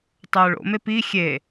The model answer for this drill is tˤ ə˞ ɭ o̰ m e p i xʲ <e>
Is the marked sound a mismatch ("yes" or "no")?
no